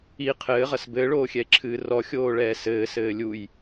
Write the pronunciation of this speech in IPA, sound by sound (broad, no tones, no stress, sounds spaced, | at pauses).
i qʰ ɘː ʁ ɐ s b ɘː ɭ oː xʲ ɛ e̯ ǁʰ ɨː r ɔ xʲ oː ɭ ɛː s ɘː s ɘː lʲ u j